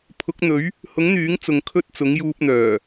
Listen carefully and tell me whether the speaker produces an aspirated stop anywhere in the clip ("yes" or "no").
yes